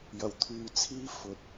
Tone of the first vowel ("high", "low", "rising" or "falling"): low